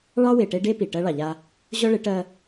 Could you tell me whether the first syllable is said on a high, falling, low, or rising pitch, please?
high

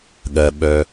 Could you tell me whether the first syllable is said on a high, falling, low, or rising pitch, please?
low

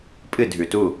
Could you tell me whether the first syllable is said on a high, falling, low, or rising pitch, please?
falling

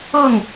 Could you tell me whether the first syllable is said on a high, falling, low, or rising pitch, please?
falling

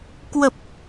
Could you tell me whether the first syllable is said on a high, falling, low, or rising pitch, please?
low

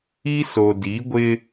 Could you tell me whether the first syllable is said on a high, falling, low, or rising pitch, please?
high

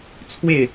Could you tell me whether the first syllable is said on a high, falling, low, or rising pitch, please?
falling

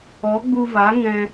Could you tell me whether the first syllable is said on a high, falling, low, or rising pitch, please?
rising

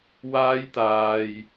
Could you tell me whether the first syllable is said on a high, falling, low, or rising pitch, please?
high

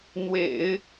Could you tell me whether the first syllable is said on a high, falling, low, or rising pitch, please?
low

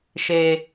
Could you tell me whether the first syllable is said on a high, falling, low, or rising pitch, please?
high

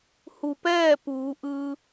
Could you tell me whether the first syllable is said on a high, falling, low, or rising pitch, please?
low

